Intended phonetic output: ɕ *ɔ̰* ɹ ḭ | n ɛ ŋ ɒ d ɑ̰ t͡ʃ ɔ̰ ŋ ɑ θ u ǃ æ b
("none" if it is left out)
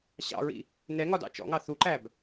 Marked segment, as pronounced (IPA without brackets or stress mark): ɑ̰